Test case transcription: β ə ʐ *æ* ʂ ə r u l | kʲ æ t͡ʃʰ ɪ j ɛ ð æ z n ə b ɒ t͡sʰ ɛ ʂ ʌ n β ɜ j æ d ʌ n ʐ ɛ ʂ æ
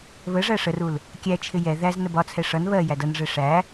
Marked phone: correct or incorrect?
correct